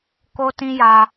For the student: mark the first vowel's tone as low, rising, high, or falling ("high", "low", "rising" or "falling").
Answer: high